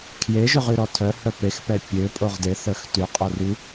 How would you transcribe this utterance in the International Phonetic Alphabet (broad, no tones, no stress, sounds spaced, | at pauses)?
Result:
kʰ j e ʒ ø ʁ y ɾ ɔ tʰ œ h œ p e x p ɛ pʲ ø pʼ o ʁ d e θ œ x t y qʼ o r y